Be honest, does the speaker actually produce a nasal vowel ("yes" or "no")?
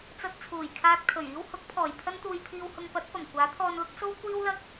no